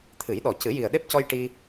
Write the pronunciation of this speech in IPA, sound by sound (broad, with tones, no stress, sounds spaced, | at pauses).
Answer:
t̪ʰ ɨ˨˩˦ j ɗ ɔ˨˩ c ɨ˨˩˦ j i˨˩ ə̯ ɗ e˦˥ p̚ c ɔ˧ j ʈ i˧